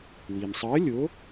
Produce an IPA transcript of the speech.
w i˩ m sˤ əː˨˥ lʲ o˨˥

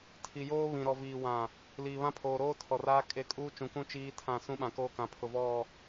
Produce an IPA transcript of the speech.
tʰ i˨ j oː˦ β ĩ˨ ɾ ɔ˨ v iː˨ w ã˨ | l iː˨ β ã˦ pʰ oː˨ ɾ oː˦ tʰ ɔ˨ r aː˦ kʼ e˦˨ kʼ uː˦ t͡ʃ ũ˨ k ũ˦ t͡ʃ iː˦ tʰ ã˦˨ s ũ˦ ɓ ã˨ k oː˦ k ã˨ pʰ ʊ˨ v ɔ˦˨

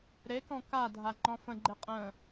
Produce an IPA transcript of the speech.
ɾ e k ɔ̃ k a dʱ a ŋ͡ǃ ɔ̃ f ə̃ ɡ͡ǃ e qʼ ə̃

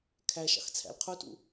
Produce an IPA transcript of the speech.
kʰ æ ʃ ɑ̰ x t͡sʰ æ̰ l qʰ u t ṵ

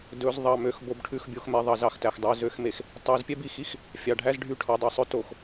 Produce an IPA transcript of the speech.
d ɵ˨˦ z ðˤ ɑ˨ m ø˨ x b o˨ b ʈʰ ʉ˨ x bʲ o˨ x m ɛ˨ ðˤ ɑ˨ z ɑ˨ x t æ˨ x dˤ ø˨ z ø˨˦ x m e˨ x | tˤ æ˨˦ z pʲ ɛ˦ b i˨ x i˦ x | fʲ ɑ˨ ɖʱ æ˦ z ɖʱ y˦˨ ʈʰ ɔ˨ dˤ i˨ sˤ ɵ˦ t o˨ x

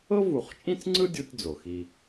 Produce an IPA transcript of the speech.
ɤ˦ v u˨ χ t͡ʃʼ ĩ˦ t͡s ŋ͡ǀ ɯ˦ dʲ u˦ tʲ d͡z o˨ x i˦

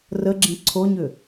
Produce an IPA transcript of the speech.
r ə ɡ͡ǁ ĩ ǀʰ o ɲ ʏ

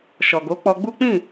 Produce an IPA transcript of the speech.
ʃ ɔ˨ ɡ o˨˦ k͡p ɔ˧ ɡ͡b u˦ k͡p ĩ˦˨

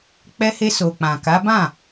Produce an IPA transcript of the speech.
k͡p ɛ˧ h e˧ s o˨ k͡p ã˨ k a˨˦ b ã˦˨

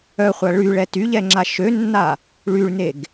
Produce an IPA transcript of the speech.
œ χʷ a ɭ y ɭ ɛ t y ʎ ɛ ŋ͡ǁ a ʃ ø nː a | ɭ y ɭ n e ɡ

